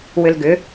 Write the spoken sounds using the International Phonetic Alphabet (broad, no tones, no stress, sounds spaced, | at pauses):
w ʏ l ɡ ʏ